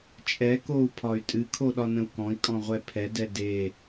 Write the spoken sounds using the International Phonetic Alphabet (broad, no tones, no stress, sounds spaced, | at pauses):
t͡ʃʼ ɛ k o u̯ pʰ ɒ y̯ tʼ ɨ kʰ o ɗ ɒ n ə̃ u̯ k ɔ̃ i̯ kʼ ɔ̃ ʁʷ ɛ pʰ ɛ d ɛ d e